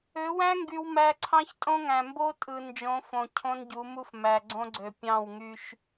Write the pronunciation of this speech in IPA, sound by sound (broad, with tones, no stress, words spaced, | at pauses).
ø˨˦wæ̃˦ ŋɡy˦wmæ˦ ǀʰɑ̃˦çtʼõ˦ŋæ̃˨ mbo˦ tʼɯ˨ nd͡ʒõ˨˦fõ˨ cʰõ˦nɟu˨˦mu˦f mæ˨ɡ͡ǀõ˦ɡ͡ǀø˨ pʲɑ̃˦˨w ŋy˦ʃ